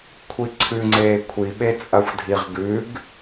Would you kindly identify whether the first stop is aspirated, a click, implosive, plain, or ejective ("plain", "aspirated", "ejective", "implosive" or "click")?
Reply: aspirated